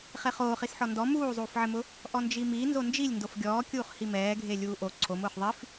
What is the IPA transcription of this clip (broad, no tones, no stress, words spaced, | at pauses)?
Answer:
χeχoːχis ħɔndɔ muːzˤuːfʕɪmʊ | ʔɔnd͡ʒimi nzond͡ʒilʲ ndofɡʲɔːkʲuːχ himɛːɡʱe lʲuːʔo ǀʰom ʊːχðˤif